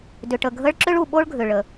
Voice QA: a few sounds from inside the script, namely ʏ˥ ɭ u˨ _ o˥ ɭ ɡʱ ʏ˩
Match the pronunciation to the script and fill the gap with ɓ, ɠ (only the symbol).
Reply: ɓ